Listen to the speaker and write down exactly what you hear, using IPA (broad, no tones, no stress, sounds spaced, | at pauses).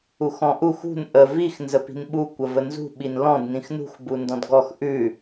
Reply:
u x ɔ̃ ʔ u x ṳ n ʔ ə v i x n z ə p i̤ n ɓ u kʷ ə v ə n z ṳ ɓ i n l ɔ̃ d n ĩ x n ṳ x b u n d ɔ̃ d ɡ ɔ x ʔ ʉ